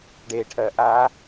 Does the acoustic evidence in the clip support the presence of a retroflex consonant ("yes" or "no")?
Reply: yes